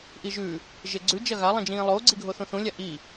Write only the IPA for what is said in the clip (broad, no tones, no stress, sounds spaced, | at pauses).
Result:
ʔ i ʒ ʉ | ʒ e ɡ͡ǀ ʉ d͡ʒ ɐ ɣ a lˠ ĩ d͡ʒ ĩː lˠ oː ɡ͡ǀ i ɡʱ o θ ũ θ ũ lʲ a ʔ i